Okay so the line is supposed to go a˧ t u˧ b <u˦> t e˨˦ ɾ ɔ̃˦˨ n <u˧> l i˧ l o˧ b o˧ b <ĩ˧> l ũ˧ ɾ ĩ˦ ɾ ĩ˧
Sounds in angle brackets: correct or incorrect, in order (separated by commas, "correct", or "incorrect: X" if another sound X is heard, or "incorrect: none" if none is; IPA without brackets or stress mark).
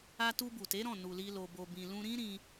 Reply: incorrect: u˨, incorrect: u˨, correct